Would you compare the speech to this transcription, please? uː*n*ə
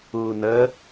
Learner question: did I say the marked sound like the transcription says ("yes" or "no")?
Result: yes